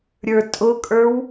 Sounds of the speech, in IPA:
ɾʲə˞tʼʊkʼə˞w

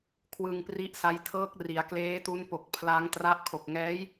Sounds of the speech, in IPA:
kʰwɯ˧ŋpri˦˥ʔsa˦˥j tʰɤː˦˥k̚ri˩˦a̯kleː˦˥tu˦˥n po˨˩k̚ pʰla˦˥ŋtra˦˥ʔ kʰo˨˩k̚ŋɛː˦˥j

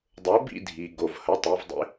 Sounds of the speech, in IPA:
dˤo˨˥bḭ˥˧ dʱi˩ɡo˩vhə˩˧ tˤi˩˧vdˤḭ˨˥

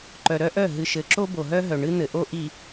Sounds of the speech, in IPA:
ǃœ˨ɾœ˦ʔœ˦˨ ɦɨ˨ʃɘ˨ǁo˦ bo˨ɦœ˦ɦœ˨ ɳɨ˦n̪ɘ˨ʔo˦ ʔi˨

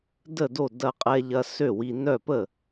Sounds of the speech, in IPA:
də˥˩do˥˩ dɐ˧qʼɛ˧ʎɐ˧ sø˥˩wi˧ nœ˥˩pə˥˩

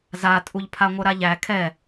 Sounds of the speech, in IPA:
zatʼuʎpʰa ŋʷœɾaʎæ kʰɛ

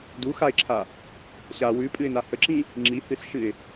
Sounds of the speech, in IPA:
du xaɪ̯ǁʰa | ɕa wʉpʼɨɪ̯na həǁĩ | ŋ͡ǁihɨsʃɨɪ̯

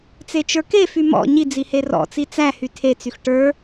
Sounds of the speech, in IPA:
t͡set͡ʃə˞kefy mɔ̰ ɲid͡zi herɔ̰t͡si t͡sæhy tʰet͡syx ʈə˞

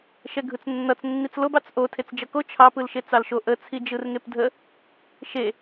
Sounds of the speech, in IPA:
ʃɛɡʱɯt͡snːʌt͡s nːit͡slob ɑt͡sʔo tʰet͡sd͡ʒʌko t͡ʃʰɑ pɯlʃet͡sɑlʃo ʔə t͡sʰid͡ʒɯrŋepdʱə | ʃe

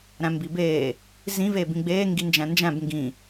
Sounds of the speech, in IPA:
ɾæ̃mbibeː | zĩ veːbĩɡ͡beː ŋɡind͡ʒæ̃nd͡ʒæ̃b ŋɡĩ

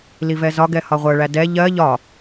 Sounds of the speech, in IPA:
livɛzɒɡɛ hɒʁʷɜɭæ dɛ ʎɜ ʎɒ

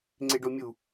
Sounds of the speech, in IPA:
ŋ͡ǀeɖomʲu

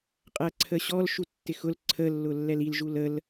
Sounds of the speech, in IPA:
qʼæǀʰəɕɔlʃu tːɪxʊl ǀʰəlːʊ lːɛlilʒul əl

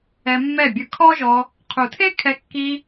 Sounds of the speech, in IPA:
ɛ˧mːɛ˦˨bʲɯ˧ kʰɔ˦ʒɔ˧ | qʰu˨tʰe˦kʰɛ˧ kːi˧

